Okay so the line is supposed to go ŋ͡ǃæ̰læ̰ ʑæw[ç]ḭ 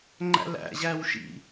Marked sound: incorrect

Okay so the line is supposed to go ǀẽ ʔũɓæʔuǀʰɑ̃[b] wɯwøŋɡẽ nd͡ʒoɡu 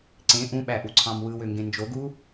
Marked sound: incorrect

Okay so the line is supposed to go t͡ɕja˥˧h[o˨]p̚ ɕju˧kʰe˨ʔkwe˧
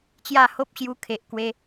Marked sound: incorrect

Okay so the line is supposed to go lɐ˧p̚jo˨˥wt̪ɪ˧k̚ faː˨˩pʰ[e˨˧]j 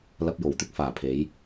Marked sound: correct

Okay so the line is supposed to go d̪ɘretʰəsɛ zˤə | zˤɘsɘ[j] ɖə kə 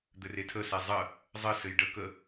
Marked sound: correct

